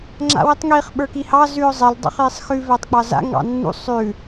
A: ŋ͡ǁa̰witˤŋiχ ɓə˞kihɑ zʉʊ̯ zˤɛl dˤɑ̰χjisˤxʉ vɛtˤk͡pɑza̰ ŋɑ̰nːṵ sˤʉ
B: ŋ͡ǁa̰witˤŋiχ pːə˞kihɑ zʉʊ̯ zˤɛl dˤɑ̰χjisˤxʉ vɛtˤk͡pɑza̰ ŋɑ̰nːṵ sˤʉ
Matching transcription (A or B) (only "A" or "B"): A